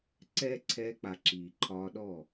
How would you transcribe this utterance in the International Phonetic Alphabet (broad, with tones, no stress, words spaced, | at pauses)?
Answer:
ǀɛː˦ ǀʰɛː˧k͡pa˨ ǁiː˨ǃʰɒː˧ɗɔ˦˨